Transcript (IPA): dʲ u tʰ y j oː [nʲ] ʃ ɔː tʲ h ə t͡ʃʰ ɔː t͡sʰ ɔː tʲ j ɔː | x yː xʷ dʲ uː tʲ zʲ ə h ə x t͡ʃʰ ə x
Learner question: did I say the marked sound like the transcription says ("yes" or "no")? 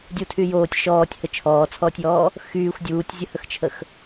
no